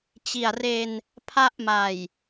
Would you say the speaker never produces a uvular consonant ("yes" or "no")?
yes